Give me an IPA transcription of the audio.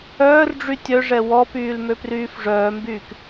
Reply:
œː r ɖ͡ʐ y tʲ œ ʐ ɛ w ɔ p yː l m ø p r yː f ʐ œː m b yː k

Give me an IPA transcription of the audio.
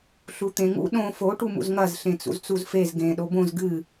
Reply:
ɬ u t̪ ẽ ŋ ṵ ɗ õ f o ʈ u m ṵ z ŋ ɐ z ɬ ẽ t͡s ṵ z t͡s u z f e z ɡ ẽ ɗ o b õ z ɡ ɨ

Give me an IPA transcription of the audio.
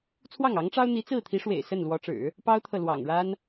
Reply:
t͡sʰ w ɑ˥˩ ŋ ɑ˧˥ ŋ ʈ͡ʂ ɑ˥ ʊ̯ n̪ i˧˥ t͡s ɹ̩˥˩ t̪ʰ i˧˥ ʂ w ḛ˨˩ ɪ̯ s ə˥˩ n l w ɔ˧˥ ʈ͡ʂ ɻ̩˨˩˦ | p ɑ˥ ʊ̯ t̪ʰ ɤ˨ l w ɑ̰˨˩ ŋ ɻ a˥ n

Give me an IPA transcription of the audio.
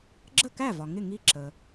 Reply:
ɡ͡ǁ ə˥˩ k æ˥˩ v ɒ˩ ŋ ɪ˥˩ ŋ i˥˩ ǁ ə˩

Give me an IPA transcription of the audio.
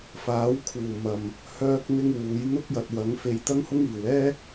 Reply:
f aː˨˥ w kʰ uː˨˩ m ɐ˨˩ m | h œː˥ k̚ n̪ ɪ˥ ŋ w uː˨˥ j n̪ ʊ˥ k̚ j ɐ˨ t̚ w ɐ˨˥ ŋ f e˧ j t̪ ɐ˥ ŋ h ʊ˥ ŋ iː˨˩ w ɛː˥

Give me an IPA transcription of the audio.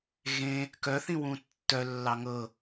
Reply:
ɣ ẽ | k œ θ ĩ w ũ tː œ lː ɑ ŋ ɤ

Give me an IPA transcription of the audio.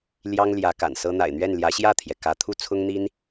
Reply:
l j ɑ˥ ŋ l j ä˧˥ k a̰˨˩ n s ɤ˥ n̪ a̰˨˩ ɪ̯ n̪ ɥ ɛ˥˩ n l j ä˧˥ ɕ j ä˥˩ t̪ʰ j ɛ˩ k ä˧˥ t̪ʰ u˥˩ t͡sʰ ʊ˥ ŋ n̪ i˥ n

